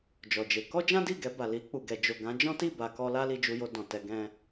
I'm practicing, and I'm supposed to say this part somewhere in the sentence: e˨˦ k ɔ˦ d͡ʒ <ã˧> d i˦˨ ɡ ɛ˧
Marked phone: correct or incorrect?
incorrect